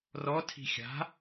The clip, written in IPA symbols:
r ɔ tʰ i̤ xʲ a̤

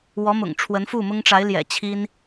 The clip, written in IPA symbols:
w ɔ˧˥ m ʊ̰˨˩ ŋ ʈ͡ʂʰ w ə˧˥ n f u˥˩ m ʊ˥ ŋ ʈ͡ʂ a˧˥ ɪ̯ l j ɛ̰˨˩ t͡ɕʰ i˥ n

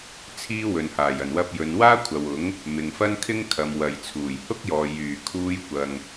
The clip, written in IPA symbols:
t͡sʰ iː˥ w ɵ˨ n h aː˨˩ j ɐ˨˩ n w ɐ˧ p̚ j ɵ˨˧ n w aː˥ kʷʰ ɐ˨ w ʊ˨˥ ŋ | m ɪ˨ ŋ f ɐ˥ n kʰ ɪ˥ ŋ kʰ ɐ˨ m w ɐ˨ j t͡sʰ uː˨˩ j h ʊ˥ k̚ j ɔː˨ j yː˨˩ kʰ uː˧ j kʷ ɐ˨ ŋ

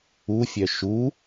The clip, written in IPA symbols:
u fʲ œ ʃ u

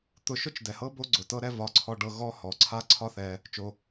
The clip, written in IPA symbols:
t̪ ʊ˧ ʃ ʊ˦ t͡ʃ d ɛ˨ h ɤ˦ b o˦ ɡ͡ǀ ʊ˨ t ɤ˦ ɾ ɛ˦ v ɒ˧ ǀʰ ɔ˧ ɖ ɤ˧ ɣ ɔ˦ h ɔ˨ ǀʰ a˦ ǀʰ ɒ˦ θ ɛ˧ | t͡ʃ o˧

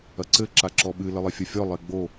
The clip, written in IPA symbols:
ɐ ǀ ɘ ǁ a ǁ ɔ ɓ ɨ l ɘ lˠ i fʲ ɐ fʲ ɔ lˠ e ɡ͡b o

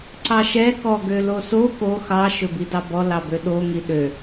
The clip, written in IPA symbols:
ǀ ɑ ʃ ɛ k ɔ ɡ ø l o s o k o x ɑ ʃ ɵ b i d ɑ b ɔ l ɑ b ø ɗ o ŋ i ɗ ø

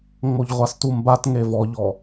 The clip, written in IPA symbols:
ŋ͡m o ʎ ʁʷ a s t u m b a t ŋ e v ɔ ʎ ɔ

